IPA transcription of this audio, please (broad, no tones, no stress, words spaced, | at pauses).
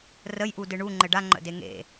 rəjʔudɨ ɳu ŋ͡ǃɘɖaŋ͡ǃə̰de ŋḛ